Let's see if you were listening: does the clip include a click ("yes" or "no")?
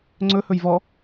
yes